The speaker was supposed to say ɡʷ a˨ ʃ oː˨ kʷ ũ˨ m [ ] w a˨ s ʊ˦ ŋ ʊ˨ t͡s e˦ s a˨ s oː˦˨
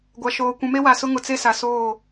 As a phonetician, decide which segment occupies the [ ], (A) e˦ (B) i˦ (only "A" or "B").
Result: A